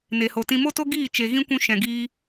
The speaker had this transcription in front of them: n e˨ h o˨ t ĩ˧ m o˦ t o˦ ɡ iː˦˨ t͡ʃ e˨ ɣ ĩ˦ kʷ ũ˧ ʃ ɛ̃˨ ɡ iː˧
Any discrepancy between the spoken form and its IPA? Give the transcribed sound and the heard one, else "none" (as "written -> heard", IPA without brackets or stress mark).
none